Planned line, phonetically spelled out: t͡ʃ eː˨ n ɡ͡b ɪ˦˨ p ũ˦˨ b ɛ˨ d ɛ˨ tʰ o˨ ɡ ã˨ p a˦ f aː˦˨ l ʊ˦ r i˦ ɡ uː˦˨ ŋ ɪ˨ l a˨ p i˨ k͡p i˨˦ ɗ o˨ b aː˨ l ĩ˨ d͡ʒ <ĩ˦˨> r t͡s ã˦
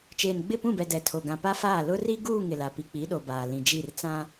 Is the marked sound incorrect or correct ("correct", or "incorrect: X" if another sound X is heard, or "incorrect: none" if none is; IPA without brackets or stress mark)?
incorrect: i˦˨